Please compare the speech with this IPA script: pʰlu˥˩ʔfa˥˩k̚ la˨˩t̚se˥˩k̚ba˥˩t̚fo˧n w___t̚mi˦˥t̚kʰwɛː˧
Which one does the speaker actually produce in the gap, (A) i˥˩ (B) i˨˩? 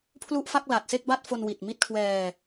B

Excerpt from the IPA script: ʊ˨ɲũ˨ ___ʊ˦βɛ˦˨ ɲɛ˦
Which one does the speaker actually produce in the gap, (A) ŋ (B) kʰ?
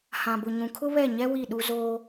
B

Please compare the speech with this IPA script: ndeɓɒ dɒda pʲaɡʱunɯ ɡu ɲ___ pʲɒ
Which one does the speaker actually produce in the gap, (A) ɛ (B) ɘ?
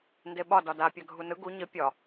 B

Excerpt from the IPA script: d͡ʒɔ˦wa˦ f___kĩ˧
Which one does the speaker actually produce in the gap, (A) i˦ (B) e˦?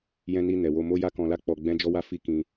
A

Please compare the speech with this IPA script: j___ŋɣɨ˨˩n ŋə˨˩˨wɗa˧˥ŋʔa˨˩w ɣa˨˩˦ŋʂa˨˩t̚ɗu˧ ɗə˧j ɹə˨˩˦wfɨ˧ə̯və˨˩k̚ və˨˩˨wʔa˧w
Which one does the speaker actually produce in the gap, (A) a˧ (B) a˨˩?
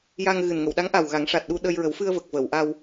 A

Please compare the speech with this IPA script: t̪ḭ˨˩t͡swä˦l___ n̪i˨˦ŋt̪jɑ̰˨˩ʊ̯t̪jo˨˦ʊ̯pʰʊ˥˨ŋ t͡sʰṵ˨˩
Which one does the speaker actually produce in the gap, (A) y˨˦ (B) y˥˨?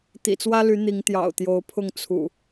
A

